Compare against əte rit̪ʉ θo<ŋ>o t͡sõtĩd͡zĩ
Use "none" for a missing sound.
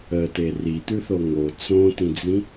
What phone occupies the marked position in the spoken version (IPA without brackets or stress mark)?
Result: ŋ